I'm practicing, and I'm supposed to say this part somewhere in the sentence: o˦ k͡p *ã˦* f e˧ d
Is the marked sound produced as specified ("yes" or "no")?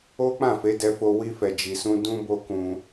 no